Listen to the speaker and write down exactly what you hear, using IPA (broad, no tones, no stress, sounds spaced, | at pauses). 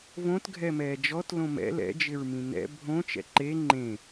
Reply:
v õ t ɡʱ ɛ m ɛː d͡ʒ ɔ t l õ m ɛ̰ l ɛ̰ d͡ʒ ɪ ɹ m ĩ n ɛ̰ bʱ õ t͡ʃ ɛ̰ ǃ e ŋ͡ǃ ẽ